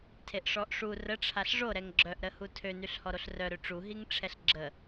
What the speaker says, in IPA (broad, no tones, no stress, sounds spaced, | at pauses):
tʰ e ʔ ʂ ɔ ʔ ʂ u r ə ʈ͡ʂʰ a ɬ ʐ o ɾ ɛ ŋ ɡ͡ǁ œ ʔ ɾ ə h u tʰ ø n y ɬ h ɔ ɾ o ɬ r œ ɾ ø ʈ͡ʂ u ɦ i ŋ ʈ͡ʂʰ ɛ ɬ ɡ͡ǁ ə